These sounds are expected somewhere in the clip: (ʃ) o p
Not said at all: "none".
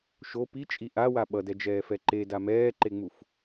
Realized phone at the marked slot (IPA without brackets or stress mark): ʃ